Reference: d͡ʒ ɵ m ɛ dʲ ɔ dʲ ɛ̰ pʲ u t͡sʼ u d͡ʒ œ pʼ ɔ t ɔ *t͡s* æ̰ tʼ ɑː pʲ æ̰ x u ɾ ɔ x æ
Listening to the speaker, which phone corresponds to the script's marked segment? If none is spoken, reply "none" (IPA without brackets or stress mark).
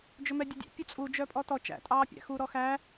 t͡ʃ